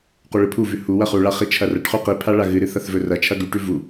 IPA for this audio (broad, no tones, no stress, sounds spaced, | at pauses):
q u ɭ ɨ pʰ u v ʉ h u w ɐ χ u ɭ a χ i t͡ʃʰ ɐ r ɐ ʈ χ ʉ q i pʰ a ɭ a ɣ ɨ ɾ ɨ θ ɐ θ v ɵ r ɐ t͡ʃʰ ɐ ɡ ʉ ʈ ʉ v u